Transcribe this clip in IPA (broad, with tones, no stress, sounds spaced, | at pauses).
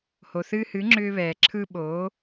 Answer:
h o˩ θ ɨː˧ h ɨ˩˥ ŋ͡ǁ ʏː˧ β ɛː˩ ǁʰ ɯ˧ ɓ o˩˥